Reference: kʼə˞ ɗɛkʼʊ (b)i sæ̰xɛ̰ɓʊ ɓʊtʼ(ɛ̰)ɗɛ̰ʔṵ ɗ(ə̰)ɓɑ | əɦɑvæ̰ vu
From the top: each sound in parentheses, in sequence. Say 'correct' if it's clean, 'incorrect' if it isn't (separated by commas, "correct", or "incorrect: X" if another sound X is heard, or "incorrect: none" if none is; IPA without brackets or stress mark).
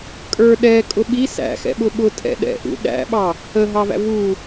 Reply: incorrect: ɓ, correct, incorrect: æ̰